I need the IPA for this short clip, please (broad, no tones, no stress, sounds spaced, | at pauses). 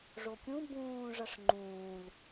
ʐ o kʲ ũ b ũː ʐ ʌ ʂ ŋ͡ǃ ũː l